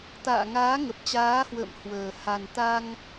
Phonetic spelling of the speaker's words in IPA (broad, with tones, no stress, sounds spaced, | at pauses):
t̪ a̰ː˧˨ ŋ aː˨˦ ŋ ə˨˩ p̚ t͡ɕ aː˨˦ h w ə̰ː˧˨ m h w əː˨˩ h a˨˩ n t̪ a˧ ŋ